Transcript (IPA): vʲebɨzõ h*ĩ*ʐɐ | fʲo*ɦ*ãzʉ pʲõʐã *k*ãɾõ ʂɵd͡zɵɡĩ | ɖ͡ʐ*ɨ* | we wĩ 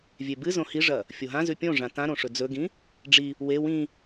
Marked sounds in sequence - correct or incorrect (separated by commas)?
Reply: incorrect, correct, incorrect, incorrect